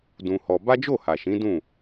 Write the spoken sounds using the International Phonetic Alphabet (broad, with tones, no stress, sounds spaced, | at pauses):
d ũ˧ h ɔ˧ b a˦ d͡ʒ o˦˨ h a˨ ʃ ĩ˨˦ d ũ˦˨